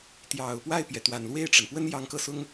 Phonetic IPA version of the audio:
t̪ j ɑ˨˩ ʊ̯ p w a˥˩ ɪ̯ p j ɛ˩ t̪ w a˨˩ n l w e˥˩ ɪ̯ ʈ͡ʂ ə˩ n p w ə˥ n j ɑ˧˥ ŋ k ɤ˥˩ s ʊ˥ ŋ

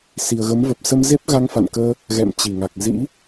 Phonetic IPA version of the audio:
s i˨˩ ə̯ ɣ ə˨˦ m v ə˨˩ p̚ s ə˧ m z e˦˥ p̚ ɣ a˧ ŋ f a̰˧˨ n k əː˧ | ɣ ɛ̰˧˨ m t͡ɕ i˧˩ ŋ a˨˩ k̚ z ḭ˧˥

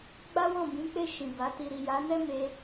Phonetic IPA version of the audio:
ɡ͡b a˦ w ɔ̃˦˨ b ĩ˨˦ k͡p e˦˨ ʃ ĩ˨ b a˨˦ t i˧ ɾ i˨ j a˨˦ n ɛ˦ m e˦

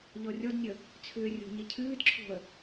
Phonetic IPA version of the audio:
ʎ ɔ rʲ ɔ d nʲ ə | t͡sʰ ʏː rʲ o̤ ɲ ɘ cʰ ɨː d ǁʰ o̤ ə̯

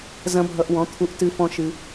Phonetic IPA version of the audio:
z ɐ̃˦ bʱ ʌ˧ ʔ w ɔ̃˨˦ t̪ʰ u˧ ʔ t ɨ˧ f ɔ̃˧ ʃ ɨ˧

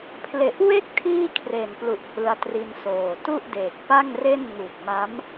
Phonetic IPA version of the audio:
pʰ l e˨˩ ʔ w e˥˩ k̚ tʰ iː˥˩ kʰ r e˨˩ n p l u˨˩ ʔ h ɯ˧ a̯ t r i˧ n s oː˨˩ t u˥˩ ʔ d eː˨˩ k̚ p a˥˩ ŋ r e˥˩ n ŋ u˨˩ k̚ m a˦˥ m

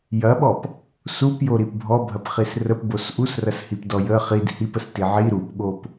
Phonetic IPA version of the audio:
j ɐ ɓ ɔ p | s u p j o ɾ i p bʱ ɔ bʱ ɐ p χ i s r ə p b o s ʔ u s r ɐ s h i p d ɔ j ə χ i d h i p ə s t i ʕ i ɾ u p ɠ o p

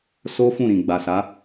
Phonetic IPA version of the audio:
s o˦ f ũ˦˨ ɾ ĩ˨ ɡ͡b a˨ s a˨˦

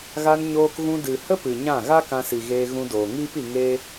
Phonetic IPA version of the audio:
ɣ a˧ n ɲ oː˧ k ɣ ũ˧ d ɨ˨ h ə˦ p ɨ˨ ɲ ã˦˨ ɣ a˦ k ã˧ s i˨ ɣ eː˧ ɣ ũ˧ d oː˨ ŋ iː˦ p i˧ ŋ e˦

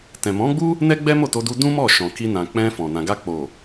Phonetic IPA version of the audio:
t ɛ̃˨ m ɔ̃˨˦ ɡ͡b u˦ | n ɛ˦ ɡ͡b ɛ˦ m o˦˨ t o˧ d u˧ d ũ˦ m ɔ˦˨ ʃ ɔ̃˨ k i˧ n ã˨ k͡p ɛ̃˧ f ɔ̃˨ n ã˨ ɡ a˧ k͡p o˨

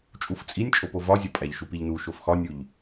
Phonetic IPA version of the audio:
t͡ʃʼ u f t͡sʼ i nʲ t͡ʃʼ o p o v ɒ zʲ ɒ pʼ æ ʎ ʃ u p i ʎ n u ʃ o f x ɒ nʲ u ʎ

